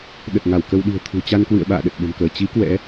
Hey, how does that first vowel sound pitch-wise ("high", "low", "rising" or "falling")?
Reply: low